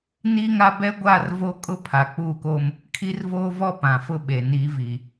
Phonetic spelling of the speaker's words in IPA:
n iː˦ ŋ a˦ b ɛ˦ ɡʷ aː˦˨ r v o˦ kʼ ʊ˦ pʰ a˨ k͡p uː˦˨ k oː˦ m | kʰ i˦ r v oː˦ v ɔ˦ p ã˨ f ʊ˦ ɓ e˨ n i˨˦ v i˨

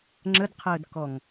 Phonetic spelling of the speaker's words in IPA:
ŋ͡ǁ ə d qʰ əː d k ɔ ŋ

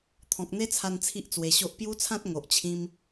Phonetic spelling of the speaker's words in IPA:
t̪ʰ ɔ̃˨ k̚ n̪ e˦ t͡sʰ a˧ n t͡sʰ i˦ ʔ t͡s w e˧ ɕ o˦ ʔ p j u˦ t͡sʰ ã˦ t̚ ŋ o˨ ʔ t͡ɕʰ ĩ˧ m

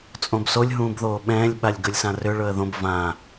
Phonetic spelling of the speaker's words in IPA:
t͡sʼ õ b s o lʲ ɦ ũː b ð oː ɓ ɛ̃ː lʲ ɓ a lʲ ɡ ɵ lʲ s ã r ʏ ɭ ɵ ə̯ ð õ b v ã

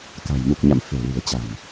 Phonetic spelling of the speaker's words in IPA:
k a̤˨˩ j m u˨˩ k̚ ɲ a̰˧˨ m f e̤˨˩ l i̤˨˩ ə̯ t͡ɕ a̤˨˩ m

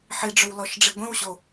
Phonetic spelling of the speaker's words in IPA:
ħ i ɖ͡ʐ ʏ w l ɔ ʃ ɖ͡ʐ i ɡʷ ĩ w ɕ o

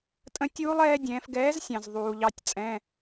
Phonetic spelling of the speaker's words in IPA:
tʼ ə̃˦˥ tʲ uː˦˥ lˠ ɛː˦˥ dʲ ɛ̃ː˨˦ f ɡ ɛː˨˦ z sʲ ɑ̃˨ z ðˤ uː˨ ʎ ɑ˦˥ tʲ t͡sʼ ɛ̃˧˥˧

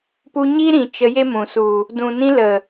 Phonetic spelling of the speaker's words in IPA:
p u˧ ɲ i˦ ɾ ĩ˨ t͡ʃ ə˧ j e˦ m ũ˨ s u˨ | d ũ˨ n ĩ˧ l ə˨

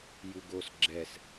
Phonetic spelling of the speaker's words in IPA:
j u ɡ o s ɡ͡ǁ ɛ s

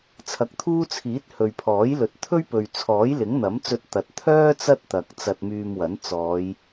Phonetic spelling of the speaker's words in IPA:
t͡sʰ ɐ˨˥ k̚ t̪ʰ uː˥ t͡sʰ iː˨˥ t̚ h ɵ˨ ɥ pʰ ɔː˨˥ j l ɵ˨˥ t̚ t̪ʰ ɵ˥ ɥ p ɵ˨ ɥ t͡sʰ ɔː˨˥ j l ɪ˨˥ ŋ n̪ ɐ˨˥ m t͡s ɵ˧ t̚ t̪ ɐ˨˥ t̚ t̪ʰ œː˥ t͡s ɐ˥ t̚ t̪ ɐ˨ k̚ t͡s ɐ˧ t̚ m yː˧ m w ɐ˨˥ n t͡s ɔː˨˧ j

